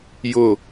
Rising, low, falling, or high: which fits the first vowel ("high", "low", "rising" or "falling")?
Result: falling